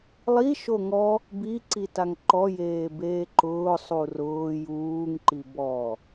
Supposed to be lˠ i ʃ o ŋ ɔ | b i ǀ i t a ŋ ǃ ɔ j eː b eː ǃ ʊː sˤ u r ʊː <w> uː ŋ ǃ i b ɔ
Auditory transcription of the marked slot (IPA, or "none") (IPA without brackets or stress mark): j